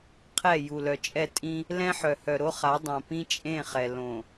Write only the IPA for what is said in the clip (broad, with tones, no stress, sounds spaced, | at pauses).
qʰ ɛ˦˨ j u˨ l œ˨ t͡ʃʼ ɛ˦˨ tʼ ĩ˦ | l ɛ̃˦ ħ œ˨ h œ˨ ɾ o˦ χ a˨˦ dˤ õ˨ p ĩ˦ t͡ʃʼ ẽ˦˨ χ ɛ˨ l õ˨